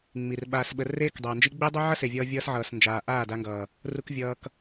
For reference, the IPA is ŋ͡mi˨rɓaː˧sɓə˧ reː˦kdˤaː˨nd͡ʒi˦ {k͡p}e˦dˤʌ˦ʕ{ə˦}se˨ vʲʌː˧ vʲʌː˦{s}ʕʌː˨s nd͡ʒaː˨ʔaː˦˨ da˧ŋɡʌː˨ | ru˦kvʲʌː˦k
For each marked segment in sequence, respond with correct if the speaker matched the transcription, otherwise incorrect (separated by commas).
incorrect, incorrect, correct